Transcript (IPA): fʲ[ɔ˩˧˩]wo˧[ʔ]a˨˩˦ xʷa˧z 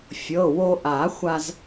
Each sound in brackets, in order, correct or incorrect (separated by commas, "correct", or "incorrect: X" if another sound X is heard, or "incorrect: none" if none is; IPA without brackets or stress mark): incorrect: ɤ˩˧˩, correct